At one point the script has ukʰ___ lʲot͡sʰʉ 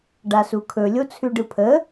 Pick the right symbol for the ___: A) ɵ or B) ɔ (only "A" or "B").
A